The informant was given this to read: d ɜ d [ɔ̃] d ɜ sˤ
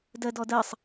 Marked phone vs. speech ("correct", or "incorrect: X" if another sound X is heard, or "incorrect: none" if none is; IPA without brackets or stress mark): incorrect: ɔ